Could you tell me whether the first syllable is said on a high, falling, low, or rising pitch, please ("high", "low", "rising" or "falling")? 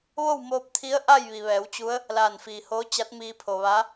falling